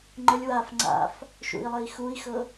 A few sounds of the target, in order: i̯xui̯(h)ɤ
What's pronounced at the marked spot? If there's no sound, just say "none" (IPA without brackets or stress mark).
x